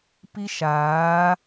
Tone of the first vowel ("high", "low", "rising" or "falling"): high